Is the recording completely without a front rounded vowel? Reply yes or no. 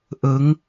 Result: yes